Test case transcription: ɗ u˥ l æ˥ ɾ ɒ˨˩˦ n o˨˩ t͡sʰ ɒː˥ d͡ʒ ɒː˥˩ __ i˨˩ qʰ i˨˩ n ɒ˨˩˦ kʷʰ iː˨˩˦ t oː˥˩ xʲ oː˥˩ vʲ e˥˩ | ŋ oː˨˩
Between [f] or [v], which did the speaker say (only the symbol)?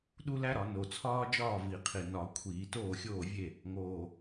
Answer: v